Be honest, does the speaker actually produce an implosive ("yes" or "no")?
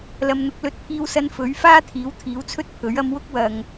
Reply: no